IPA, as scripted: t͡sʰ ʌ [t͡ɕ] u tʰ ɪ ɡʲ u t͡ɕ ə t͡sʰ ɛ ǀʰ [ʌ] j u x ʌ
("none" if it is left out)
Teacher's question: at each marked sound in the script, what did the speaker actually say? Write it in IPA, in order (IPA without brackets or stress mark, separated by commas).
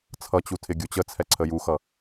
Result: t͡ɕ, ə